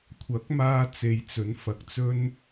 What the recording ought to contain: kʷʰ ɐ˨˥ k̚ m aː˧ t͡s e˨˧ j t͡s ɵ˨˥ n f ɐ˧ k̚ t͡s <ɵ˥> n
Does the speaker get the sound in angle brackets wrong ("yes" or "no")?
no